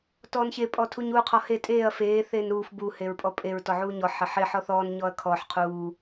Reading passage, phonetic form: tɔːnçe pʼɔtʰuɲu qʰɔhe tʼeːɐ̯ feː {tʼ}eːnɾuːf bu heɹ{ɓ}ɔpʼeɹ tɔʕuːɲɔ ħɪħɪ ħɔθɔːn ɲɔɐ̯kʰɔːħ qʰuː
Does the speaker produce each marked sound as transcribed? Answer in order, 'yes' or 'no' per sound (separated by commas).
no, no